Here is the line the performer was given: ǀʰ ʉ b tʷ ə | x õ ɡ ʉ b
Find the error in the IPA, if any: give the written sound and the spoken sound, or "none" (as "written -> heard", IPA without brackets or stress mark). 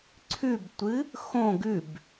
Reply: ə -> ɨ